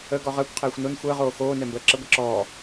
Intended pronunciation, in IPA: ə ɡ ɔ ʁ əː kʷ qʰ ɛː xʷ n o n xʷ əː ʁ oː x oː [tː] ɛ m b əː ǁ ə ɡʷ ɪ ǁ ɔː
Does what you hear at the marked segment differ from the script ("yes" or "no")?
yes